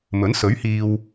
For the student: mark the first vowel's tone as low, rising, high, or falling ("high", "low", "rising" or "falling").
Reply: rising